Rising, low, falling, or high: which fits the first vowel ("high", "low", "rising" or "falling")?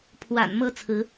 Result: low